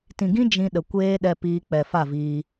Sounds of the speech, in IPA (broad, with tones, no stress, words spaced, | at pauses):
tĩ˨ɡĩ˦ d͡ʒĩ˧ ɗə˨ kʷeː˦ɗɛ˧ piː˧k͡pɛ˨fa˦˨viː˧